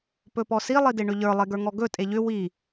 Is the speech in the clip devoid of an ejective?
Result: no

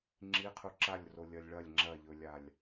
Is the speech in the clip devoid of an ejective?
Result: yes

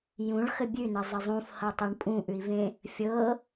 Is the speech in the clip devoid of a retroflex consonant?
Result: no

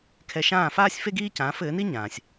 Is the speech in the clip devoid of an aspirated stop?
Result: no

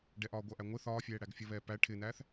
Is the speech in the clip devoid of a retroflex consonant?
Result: no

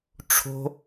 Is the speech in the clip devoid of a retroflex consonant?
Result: no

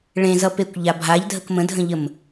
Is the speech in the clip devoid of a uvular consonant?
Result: yes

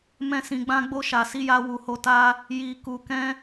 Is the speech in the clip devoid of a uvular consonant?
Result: yes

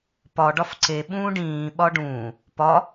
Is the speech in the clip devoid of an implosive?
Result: no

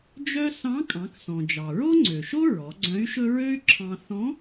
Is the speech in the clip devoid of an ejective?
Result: no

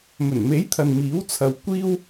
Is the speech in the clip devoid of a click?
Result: yes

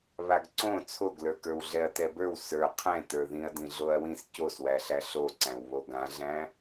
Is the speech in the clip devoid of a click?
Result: no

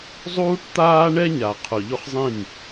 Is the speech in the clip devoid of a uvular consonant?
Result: no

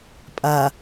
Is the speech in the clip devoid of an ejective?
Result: no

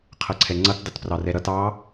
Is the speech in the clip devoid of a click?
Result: no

